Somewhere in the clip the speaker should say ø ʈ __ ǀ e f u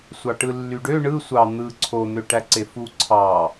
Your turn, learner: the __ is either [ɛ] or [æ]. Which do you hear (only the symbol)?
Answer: æ